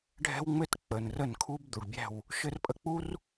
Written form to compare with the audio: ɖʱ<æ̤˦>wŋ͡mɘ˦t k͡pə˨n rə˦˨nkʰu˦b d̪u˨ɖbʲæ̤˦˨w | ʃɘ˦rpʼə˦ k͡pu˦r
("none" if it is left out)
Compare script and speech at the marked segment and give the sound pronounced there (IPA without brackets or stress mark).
ɛ̤˦